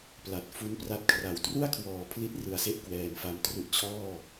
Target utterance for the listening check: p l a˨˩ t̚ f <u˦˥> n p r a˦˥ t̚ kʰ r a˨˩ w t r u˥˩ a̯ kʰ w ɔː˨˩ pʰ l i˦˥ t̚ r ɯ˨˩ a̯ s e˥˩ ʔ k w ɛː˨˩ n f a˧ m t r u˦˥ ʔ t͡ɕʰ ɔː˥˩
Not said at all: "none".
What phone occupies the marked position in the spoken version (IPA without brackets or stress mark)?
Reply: u˦˥